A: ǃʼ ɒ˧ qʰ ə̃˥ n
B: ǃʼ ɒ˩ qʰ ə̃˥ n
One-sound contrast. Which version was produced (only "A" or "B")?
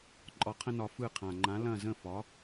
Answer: A